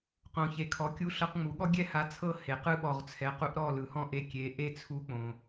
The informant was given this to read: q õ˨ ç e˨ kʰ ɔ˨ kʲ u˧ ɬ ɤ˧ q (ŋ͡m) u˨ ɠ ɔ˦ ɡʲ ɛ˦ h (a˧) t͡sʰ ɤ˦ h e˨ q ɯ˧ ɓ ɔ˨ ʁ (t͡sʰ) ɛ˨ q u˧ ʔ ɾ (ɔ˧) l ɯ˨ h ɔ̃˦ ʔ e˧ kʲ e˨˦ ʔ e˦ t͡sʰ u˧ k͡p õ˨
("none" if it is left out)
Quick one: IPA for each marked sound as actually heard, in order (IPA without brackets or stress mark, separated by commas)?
ŋ͡m, a˧, t͡sʰ, ɔ˦˨